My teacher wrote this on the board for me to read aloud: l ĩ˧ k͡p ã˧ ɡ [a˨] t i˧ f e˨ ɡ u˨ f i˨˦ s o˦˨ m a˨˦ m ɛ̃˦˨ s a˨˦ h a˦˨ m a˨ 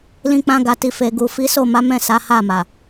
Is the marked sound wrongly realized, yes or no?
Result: no